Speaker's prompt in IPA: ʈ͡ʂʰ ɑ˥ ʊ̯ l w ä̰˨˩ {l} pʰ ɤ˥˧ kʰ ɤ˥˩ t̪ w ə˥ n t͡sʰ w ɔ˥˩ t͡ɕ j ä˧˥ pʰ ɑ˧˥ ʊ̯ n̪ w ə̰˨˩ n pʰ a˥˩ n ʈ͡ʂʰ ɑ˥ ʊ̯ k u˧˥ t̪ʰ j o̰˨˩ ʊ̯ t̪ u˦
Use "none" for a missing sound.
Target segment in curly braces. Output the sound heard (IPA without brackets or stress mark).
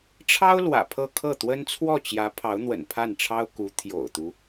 none